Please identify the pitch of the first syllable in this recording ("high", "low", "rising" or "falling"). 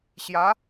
rising